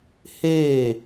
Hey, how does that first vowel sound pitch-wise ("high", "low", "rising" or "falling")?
falling